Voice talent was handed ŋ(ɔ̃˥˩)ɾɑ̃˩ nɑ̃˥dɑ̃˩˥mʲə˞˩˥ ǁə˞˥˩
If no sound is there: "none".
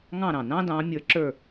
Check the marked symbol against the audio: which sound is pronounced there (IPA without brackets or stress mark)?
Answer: ɑ̃˥˩